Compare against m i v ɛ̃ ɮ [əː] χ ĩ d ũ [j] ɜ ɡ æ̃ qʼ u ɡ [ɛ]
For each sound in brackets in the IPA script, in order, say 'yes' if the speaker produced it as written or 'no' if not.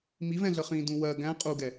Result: no, no, yes

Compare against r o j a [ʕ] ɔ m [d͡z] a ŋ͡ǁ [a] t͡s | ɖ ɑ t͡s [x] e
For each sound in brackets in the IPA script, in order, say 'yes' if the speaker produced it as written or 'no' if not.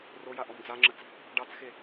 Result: no, yes, no, yes

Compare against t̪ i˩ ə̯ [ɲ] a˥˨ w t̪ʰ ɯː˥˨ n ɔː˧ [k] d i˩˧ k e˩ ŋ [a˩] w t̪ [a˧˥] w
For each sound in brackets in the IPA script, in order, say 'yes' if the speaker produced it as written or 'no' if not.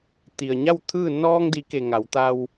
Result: yes, no, no, no

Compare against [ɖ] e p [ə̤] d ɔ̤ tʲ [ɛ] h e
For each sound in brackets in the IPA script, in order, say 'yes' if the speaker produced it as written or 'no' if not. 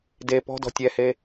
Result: no, no, yes

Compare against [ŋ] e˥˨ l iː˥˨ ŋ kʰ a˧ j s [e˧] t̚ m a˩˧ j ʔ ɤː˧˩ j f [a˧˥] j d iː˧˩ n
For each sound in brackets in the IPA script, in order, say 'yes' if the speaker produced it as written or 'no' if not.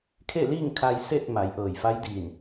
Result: no, no, yes

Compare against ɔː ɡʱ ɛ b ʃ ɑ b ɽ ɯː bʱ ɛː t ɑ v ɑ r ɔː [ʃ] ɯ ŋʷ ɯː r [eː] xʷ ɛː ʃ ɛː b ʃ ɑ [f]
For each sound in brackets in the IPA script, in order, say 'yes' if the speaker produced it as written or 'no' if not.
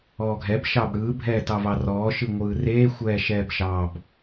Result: yes, yes, no

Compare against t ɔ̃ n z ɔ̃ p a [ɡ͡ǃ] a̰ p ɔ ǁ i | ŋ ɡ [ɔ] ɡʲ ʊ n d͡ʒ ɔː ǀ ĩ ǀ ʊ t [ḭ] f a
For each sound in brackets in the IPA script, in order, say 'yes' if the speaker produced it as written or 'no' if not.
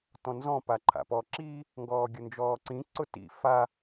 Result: no, no, yes

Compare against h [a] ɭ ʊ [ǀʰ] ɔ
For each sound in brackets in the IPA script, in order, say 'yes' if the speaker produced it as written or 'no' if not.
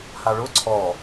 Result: yes, yes

